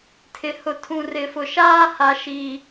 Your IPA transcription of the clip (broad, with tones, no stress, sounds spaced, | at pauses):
tʰ ɪ˨ h ʊ˨ tʰ ũ˨ r ɪ˨˦ f ʊ˨ ʃ aː˦ h a˨ ʃ i˨